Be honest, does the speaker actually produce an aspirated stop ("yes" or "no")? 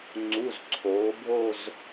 yes